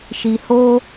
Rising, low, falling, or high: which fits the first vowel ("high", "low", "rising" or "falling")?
low